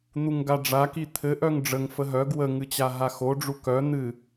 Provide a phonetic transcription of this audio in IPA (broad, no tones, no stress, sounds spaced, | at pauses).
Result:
n̪ u ŋ ɡ a ɖ͡ʐ a k i t̪ʰ ɘ ʔ œ ŋ ɖ͡ʐ ə ŋ f ə ɦ œ ɡ w ə ŋ ɨ t͡ɕ a ɦ a x o ɖ͡ʐ u k œ n̪ ɨ